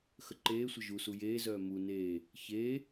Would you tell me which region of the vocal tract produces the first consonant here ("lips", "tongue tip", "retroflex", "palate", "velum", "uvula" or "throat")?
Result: velum